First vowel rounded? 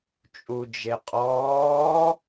yes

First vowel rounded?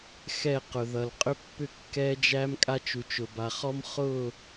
no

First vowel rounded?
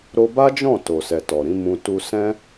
yes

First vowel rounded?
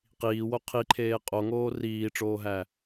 no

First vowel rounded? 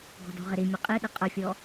yes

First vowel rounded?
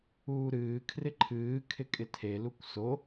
yes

